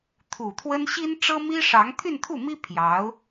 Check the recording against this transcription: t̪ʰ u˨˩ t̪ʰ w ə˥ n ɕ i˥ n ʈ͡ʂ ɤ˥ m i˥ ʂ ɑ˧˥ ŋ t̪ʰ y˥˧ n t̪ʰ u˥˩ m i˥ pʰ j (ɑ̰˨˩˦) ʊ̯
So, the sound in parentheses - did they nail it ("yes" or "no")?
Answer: no